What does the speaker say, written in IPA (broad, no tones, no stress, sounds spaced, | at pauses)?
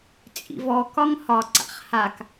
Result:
t͡sʼ ḭ v ɔ k ɒ ŋ h ɒ ǀ a̰ χ h a k